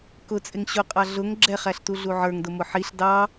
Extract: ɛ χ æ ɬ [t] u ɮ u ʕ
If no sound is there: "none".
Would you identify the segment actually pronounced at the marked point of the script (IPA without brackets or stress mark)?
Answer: t